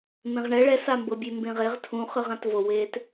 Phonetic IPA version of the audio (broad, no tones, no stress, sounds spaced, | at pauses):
m ẽ ʁ ɳ ɛ ɭ ɛ s a m b ɤ bʲ e m b ẽ ʁ e ʁ tʰ ũ χ ɯ ʁ ã t v o w eː t